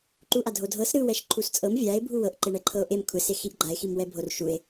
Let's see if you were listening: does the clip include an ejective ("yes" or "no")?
yes